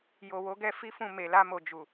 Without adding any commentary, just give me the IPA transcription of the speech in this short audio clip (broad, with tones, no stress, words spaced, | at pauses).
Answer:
jo˨wo˨˦ɡɛ˦ fi˦fũ˦˨ me˨la˧mo˨ d͡ʒu˨